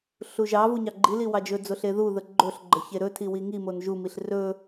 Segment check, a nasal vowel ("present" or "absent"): absent